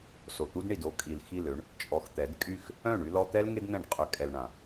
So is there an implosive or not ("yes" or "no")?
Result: no